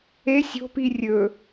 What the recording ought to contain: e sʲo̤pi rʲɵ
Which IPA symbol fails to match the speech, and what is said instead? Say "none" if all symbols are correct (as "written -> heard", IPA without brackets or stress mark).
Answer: none